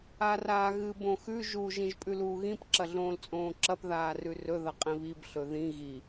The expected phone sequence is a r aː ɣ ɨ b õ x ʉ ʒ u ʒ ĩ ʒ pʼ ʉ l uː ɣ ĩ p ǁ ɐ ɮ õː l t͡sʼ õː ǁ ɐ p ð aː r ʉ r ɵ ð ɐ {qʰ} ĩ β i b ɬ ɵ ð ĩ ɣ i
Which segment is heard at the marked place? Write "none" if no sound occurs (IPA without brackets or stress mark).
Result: qʼ